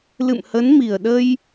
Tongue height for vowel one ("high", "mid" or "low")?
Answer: high